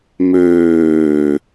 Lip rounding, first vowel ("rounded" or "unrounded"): rounded